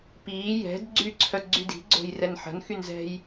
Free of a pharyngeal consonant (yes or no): no